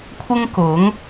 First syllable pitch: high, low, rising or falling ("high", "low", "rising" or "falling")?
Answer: high